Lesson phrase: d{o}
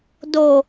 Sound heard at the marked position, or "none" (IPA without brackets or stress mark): o